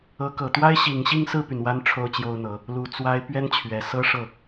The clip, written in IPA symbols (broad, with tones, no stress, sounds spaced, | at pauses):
ɤ˧˥ k ɤ˨˩ t̪ w a˥ ɪ̯ ɕ i˨˩ ŋ ɕ i˥˧ ŋ s ɹ̩˥˩ p y˩ n w a˥ n ʈ͡ʂʰ o˥ ʊ̯ t͡ɕ j o˥ ʊ̯ n̪ ɤ˧˥ | l u˨˩ t͡s w a˥ ɪ̯ p ɥ ɛ˥ n t͡ɕʰ ɥ ɛ˨˩ s ɤ˥ ʂ ɤ˥˩